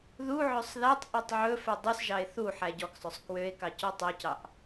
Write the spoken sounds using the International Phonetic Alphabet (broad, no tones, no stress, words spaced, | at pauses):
ðuʕøsˤ ðætˤʔotˤ ʕɵfœ dˤʉsʒɑe̯ θu ħæɟɔksˤɵsˤ kwøe̯kɑ cɔtˤocɑʔ